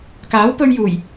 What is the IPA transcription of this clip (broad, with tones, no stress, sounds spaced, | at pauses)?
k aː˨˥ w p ɵ˧ ɥ j uː˨˩ j